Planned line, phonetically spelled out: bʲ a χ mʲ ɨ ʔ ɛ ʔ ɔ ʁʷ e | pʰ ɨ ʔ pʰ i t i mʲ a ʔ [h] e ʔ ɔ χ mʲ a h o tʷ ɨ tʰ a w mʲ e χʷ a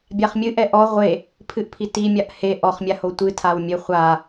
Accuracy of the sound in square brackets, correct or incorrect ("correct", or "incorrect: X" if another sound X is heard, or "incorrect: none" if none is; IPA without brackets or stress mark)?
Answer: correct